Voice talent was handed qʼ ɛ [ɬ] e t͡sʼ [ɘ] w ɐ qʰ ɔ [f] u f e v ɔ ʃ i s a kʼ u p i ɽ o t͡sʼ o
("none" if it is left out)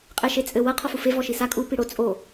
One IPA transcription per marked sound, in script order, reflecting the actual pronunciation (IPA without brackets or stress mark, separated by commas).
ʃ, ɘ, f